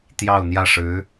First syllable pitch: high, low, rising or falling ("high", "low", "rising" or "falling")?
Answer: falling